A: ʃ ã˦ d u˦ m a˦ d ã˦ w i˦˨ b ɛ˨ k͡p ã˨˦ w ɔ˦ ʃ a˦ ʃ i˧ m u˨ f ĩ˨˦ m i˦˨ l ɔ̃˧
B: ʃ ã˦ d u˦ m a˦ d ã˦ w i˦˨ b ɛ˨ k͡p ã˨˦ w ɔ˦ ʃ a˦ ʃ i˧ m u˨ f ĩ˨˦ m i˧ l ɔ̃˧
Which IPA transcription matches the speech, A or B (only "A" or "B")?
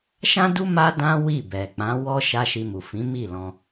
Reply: A